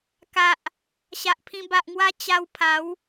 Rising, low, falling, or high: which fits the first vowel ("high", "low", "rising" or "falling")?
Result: low